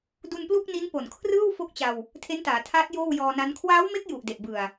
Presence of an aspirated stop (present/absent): present